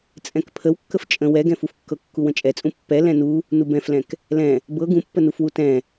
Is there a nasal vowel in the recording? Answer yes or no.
yes